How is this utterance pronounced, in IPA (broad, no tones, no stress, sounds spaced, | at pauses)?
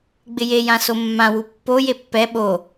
ɡ͡b ɪ j e j ã s o mː ã w u pː o j e pː ɛ ɓ o